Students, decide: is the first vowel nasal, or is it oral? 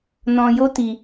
nasal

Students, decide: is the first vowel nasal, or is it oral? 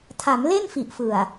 oral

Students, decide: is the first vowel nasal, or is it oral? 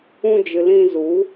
nasal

